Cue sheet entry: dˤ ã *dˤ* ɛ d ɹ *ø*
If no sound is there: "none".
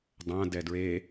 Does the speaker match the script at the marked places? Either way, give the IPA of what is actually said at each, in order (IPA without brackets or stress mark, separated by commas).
d, e